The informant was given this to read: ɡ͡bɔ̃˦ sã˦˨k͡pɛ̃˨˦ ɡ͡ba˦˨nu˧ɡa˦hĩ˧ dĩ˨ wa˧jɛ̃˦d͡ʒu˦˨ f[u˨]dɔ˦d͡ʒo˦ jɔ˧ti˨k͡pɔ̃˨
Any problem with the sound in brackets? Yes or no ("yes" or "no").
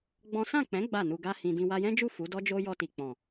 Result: yes